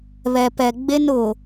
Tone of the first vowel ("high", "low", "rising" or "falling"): low